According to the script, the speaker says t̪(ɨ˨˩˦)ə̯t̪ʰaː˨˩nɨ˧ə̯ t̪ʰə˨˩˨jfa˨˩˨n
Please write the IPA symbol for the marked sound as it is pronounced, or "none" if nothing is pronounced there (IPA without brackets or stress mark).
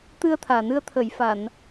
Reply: ɨ˧